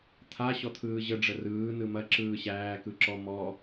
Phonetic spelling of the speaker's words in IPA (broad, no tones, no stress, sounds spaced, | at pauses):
t̪ʰ a ɕ ɔ t̪ʰ ɯː ʑ ə ɖ͡ʐ ə r ɯː n ɯ m ɐ ǁ ɯː ɕ æː k ɯ ǁ ɔ m ɔ